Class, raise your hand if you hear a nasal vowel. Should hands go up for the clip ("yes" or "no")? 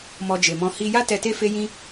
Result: yes